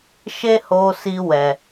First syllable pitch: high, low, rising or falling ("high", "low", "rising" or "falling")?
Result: high